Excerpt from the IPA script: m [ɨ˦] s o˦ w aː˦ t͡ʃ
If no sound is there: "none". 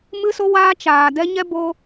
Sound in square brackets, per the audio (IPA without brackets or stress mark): ɨ˦